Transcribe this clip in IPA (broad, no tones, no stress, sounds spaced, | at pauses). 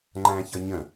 ŋ͡ǃ æ̃ ç ʌ ɲ ə̃